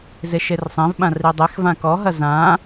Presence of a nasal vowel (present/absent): present